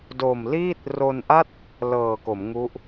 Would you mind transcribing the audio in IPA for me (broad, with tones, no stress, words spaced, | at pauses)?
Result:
do˨˩mliː˥˩t̚ ro˧nʔa˥˩t̚ | lɤː˨˩ko˩˦mŋu˦˥ʔ